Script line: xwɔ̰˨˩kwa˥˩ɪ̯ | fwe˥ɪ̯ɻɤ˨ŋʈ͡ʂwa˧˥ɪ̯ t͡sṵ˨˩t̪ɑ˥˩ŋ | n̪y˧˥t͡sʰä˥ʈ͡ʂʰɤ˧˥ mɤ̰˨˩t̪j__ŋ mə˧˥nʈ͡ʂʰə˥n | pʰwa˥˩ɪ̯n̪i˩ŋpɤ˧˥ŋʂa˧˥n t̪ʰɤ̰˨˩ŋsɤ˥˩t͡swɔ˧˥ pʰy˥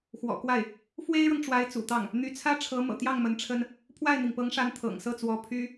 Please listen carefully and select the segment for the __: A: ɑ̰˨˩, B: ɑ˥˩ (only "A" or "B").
B